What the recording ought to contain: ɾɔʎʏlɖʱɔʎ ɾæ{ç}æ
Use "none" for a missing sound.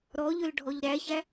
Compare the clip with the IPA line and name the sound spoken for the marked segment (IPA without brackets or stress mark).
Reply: ç